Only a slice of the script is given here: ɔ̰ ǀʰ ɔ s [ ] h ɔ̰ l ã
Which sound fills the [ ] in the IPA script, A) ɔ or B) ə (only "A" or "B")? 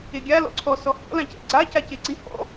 A